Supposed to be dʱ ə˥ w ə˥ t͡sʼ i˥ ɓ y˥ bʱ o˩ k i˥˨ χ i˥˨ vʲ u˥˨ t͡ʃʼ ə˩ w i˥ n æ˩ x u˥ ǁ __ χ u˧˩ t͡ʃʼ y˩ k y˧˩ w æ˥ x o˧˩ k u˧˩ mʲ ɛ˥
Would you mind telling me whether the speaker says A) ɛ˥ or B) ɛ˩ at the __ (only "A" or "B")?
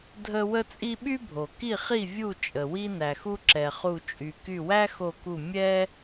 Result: B